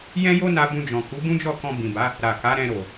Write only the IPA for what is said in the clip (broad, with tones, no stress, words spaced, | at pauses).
jɛ̃˦jo˦na˧ bũ˧d͡ʒɔ̃˨ ku˨˦bũ˦ d͡ʒɔ˦˨kɔ̃˧bĩ˨ba˨˦ | ɾa˨ ka˨˦ɾɛ̃˧ɾo˨